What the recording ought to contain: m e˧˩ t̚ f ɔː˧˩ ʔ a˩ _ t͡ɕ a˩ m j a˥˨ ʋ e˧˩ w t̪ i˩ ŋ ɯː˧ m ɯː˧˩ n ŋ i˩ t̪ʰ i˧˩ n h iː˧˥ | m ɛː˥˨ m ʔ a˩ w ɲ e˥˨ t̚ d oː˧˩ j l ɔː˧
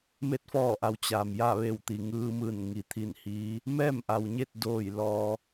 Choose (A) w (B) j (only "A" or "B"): A